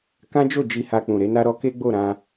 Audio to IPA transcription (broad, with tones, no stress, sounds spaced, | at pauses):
k ã˦ d͡ʒ o˦˨ d͡ʒ i˧ h a˧ k͡p ũ˨ ɾ e˨˦ n a˦ ɾ ɔ˧ k e˦ ɡ͡b o˦˨ ɾ ã˧